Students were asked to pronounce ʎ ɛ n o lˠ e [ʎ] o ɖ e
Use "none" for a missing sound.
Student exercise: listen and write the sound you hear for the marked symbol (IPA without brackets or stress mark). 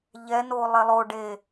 lˠ